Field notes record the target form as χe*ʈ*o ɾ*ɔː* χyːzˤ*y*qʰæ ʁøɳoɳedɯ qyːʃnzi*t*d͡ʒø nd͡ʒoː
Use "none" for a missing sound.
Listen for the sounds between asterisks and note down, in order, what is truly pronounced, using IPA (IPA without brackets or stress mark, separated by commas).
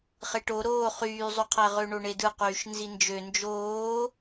ʈ, oː, y, n